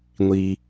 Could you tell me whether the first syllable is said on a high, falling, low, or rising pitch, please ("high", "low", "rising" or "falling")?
low